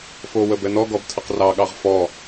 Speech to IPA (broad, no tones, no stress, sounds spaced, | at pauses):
f o w ə b ɛ n ɔ ɡ ɔ b tʰ ə q r ɑ ɠ ɑ ʁ f ɔ